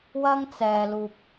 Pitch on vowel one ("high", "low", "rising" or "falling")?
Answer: high